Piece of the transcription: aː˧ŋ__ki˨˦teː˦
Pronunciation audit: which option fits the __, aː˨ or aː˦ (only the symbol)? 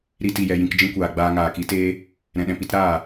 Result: aː˨